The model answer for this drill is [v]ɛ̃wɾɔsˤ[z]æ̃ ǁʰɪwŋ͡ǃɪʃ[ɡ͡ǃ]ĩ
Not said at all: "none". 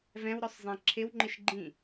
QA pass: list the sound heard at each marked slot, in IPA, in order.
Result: v, zˤ, ɡ͡ǃ

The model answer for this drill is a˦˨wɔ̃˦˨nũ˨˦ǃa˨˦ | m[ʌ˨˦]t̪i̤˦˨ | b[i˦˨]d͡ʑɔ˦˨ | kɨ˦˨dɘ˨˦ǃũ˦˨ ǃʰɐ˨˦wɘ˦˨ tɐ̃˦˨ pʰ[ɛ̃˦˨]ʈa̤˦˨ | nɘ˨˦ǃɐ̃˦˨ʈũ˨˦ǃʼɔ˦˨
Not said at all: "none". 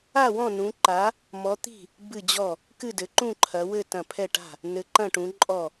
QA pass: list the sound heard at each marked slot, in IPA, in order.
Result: ɔ˨˦, ɨ˦˨, ɛ˦˨

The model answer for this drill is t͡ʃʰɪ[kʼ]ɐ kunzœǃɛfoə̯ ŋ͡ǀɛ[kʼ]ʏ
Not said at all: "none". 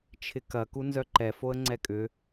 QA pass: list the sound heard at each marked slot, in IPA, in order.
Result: k, kʼ

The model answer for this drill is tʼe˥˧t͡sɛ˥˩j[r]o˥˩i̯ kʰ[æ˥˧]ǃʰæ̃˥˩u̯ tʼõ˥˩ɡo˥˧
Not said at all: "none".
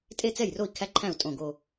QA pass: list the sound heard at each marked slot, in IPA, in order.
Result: r, æ˥˧

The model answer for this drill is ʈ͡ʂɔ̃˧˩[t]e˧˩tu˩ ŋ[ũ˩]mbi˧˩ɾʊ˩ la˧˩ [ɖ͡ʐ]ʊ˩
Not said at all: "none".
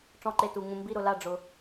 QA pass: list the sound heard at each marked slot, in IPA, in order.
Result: ǃ, ũ˩, ɖ͡ʐ

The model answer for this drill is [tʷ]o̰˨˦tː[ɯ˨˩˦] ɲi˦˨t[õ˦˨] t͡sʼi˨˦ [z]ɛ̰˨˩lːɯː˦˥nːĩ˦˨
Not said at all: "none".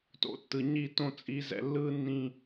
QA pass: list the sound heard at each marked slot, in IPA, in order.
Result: t, ɯ˨˩, õ˦˨, z

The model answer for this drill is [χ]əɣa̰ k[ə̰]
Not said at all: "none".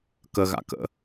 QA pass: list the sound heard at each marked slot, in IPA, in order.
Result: k, ə̰

